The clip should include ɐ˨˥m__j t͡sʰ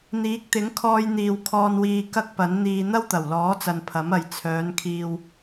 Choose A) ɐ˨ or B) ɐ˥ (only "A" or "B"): A